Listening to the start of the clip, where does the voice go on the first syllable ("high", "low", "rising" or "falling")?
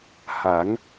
rising